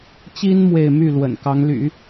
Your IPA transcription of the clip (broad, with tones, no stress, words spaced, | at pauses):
t͡ɕi˥n mwe˥˧ɪ̯ my˥˩ lwə̰˨˩nkɑ˧˥ŋly̰˨˩˦